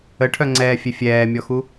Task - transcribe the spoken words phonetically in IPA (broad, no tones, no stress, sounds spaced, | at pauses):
ə ʈʰ œ ŋ͡ǀ ɛː fʲ e fʲ ɛː mʲ ɔ x u